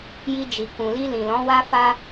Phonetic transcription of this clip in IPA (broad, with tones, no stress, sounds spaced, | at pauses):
j i˧ d͡ʒ i˨ k ũ˨ l i˧ l ĩ˨ l ɔ̃˨˦ w a˦ f a˧